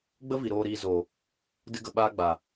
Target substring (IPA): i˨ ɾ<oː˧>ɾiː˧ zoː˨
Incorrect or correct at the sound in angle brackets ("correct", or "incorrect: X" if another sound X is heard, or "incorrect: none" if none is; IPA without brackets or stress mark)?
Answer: correct